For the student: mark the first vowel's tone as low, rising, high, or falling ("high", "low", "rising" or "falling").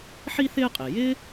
high